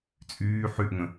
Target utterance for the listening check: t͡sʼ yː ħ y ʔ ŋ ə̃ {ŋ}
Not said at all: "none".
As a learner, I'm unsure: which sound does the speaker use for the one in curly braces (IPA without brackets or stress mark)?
none